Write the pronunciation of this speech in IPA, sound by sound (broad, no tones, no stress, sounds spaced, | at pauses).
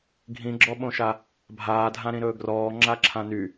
ɡʱ ĩ ɡ͡ǁ ɔ ɓ õ ʃ a | bʱ aː dʱ ã ɾ ĩ ɾ ɵː ɡ r ɔː ŋ͡ǁ a ǁʰ ã n y